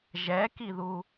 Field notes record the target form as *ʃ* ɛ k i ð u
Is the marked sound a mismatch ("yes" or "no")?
yes